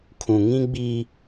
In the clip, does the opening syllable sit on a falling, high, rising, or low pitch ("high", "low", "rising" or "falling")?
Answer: low